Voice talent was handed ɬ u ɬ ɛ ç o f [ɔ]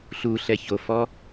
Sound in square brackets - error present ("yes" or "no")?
no